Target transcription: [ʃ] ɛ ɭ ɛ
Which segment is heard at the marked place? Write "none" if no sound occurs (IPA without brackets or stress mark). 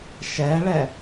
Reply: ʃ